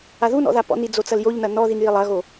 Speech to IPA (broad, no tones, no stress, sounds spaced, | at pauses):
a ð u n ɔ̰ ð a p ɔ̰ n i d͡z o t͡s ɐ l j o ʎ n ɐ n ɔ ð i n j i lˠ ɐ ɣ o